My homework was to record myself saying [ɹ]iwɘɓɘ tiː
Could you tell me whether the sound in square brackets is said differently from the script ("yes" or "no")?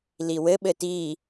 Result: yes